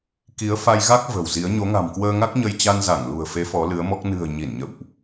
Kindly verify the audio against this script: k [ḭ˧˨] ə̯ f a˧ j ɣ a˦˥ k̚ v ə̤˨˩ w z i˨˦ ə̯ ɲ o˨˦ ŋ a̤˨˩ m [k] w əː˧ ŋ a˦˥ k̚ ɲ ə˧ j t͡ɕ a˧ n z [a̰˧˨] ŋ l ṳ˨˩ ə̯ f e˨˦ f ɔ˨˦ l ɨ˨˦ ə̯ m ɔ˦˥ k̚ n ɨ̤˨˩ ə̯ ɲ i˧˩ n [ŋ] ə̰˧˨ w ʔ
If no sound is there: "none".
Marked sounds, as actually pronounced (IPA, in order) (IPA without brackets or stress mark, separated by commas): i˨˦, k, a˧˩, ɲ